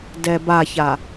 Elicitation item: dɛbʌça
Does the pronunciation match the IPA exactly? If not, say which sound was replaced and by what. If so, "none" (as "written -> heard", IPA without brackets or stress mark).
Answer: ʌ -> a